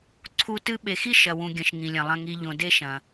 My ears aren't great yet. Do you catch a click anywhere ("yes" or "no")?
yes